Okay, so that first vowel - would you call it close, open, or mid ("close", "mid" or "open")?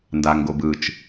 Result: open